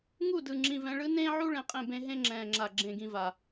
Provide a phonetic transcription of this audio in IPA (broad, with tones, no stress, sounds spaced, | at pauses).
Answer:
ŋ u˦˨ d ɯ˨ ŋ͡ǁ ĩ˨ v ɛ̃˨ ɭ ɯ˦ n ẽː˦ ʕ u˦ ɭ ẽ˨ qʼ ẽ˦˨ b ẽ˦ ɦ ẽ˦ ŋ͡ǁ ɛ̃ː˨ ŋ͡ǁ a˨ ɡ͡ǁ ẽ˨ ɡ ĩ˨ v a˨